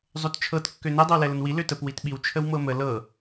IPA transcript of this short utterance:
zˤøtt͡ʃʰɤt kːønə dˤəwlɛlənwi løtəp witɓiw t͡ʃʰəwmɤmə lɤ

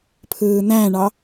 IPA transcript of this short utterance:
pʰɯːn̪æ̃ɳɑ

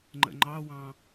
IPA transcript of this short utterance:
ŋ͡ǃə̰ŋ͡ǃɑwɑ̃

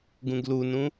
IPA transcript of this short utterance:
ɡũɡlunũ

